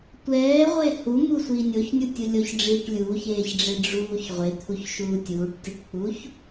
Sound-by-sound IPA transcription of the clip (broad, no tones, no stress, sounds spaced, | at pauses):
tʷ ɛː ʁʷ e h u m u sʷ iː nʲ o ç nʲ u tʲ u lʲ o ç ɖ͡ʐ iː ʈ lʲ uː ç eː ç ɖ͡ʐ e ɖ͡ʐ uː ç ʁʷ e t̪ʰ u ç ʃ uː tʲ uː ʈ tʲ u ʈ k͡p uː ç